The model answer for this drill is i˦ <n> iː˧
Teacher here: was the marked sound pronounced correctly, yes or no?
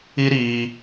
no